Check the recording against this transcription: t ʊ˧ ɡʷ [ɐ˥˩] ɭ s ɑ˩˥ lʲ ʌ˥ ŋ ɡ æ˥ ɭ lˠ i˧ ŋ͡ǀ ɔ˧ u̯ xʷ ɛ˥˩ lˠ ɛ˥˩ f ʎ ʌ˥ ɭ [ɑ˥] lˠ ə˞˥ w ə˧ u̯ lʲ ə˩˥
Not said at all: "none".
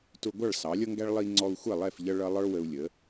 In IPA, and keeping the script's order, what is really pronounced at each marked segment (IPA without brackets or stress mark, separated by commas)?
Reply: ɑ˥˩, ʌ˥